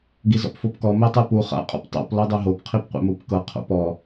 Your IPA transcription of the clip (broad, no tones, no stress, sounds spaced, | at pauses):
ɡ i z ɔ̰ p f o p k ɔ m e tˤ ɯ p u χ a̰ qʼ ɔ̰ p tˤ o̰ p l ɔ dˤ e ɦ o p qʰ i p qʷ ḛ m u p k ɤ qʰ o̰ p ɔ